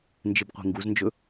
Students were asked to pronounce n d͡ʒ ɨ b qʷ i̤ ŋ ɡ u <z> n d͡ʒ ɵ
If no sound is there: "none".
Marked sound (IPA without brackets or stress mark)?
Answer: z